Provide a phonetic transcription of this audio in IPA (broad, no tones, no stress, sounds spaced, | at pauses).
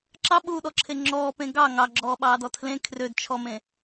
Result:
ǁ ɑ ɓ uː ɗ ɔ ǁʰ e ŋ͡ǁ ɔː p ẽ ɡ ɑ ŋ ɑ ɡ͡ǁ ɔː ɓ ɑː d ɔ tʰ l ẽ kʰ r ø d t͡ʃʰ ɔ m ẽ